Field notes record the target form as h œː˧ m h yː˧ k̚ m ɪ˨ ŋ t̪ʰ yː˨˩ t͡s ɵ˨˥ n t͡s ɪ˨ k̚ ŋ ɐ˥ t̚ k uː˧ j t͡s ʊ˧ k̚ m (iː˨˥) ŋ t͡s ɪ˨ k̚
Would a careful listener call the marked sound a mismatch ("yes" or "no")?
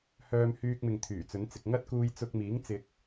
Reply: no